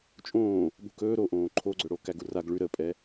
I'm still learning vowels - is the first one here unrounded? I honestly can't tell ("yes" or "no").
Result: no